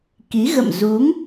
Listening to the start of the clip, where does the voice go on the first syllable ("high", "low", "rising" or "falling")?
rising